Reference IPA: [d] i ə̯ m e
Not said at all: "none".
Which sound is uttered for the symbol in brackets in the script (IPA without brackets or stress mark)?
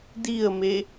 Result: d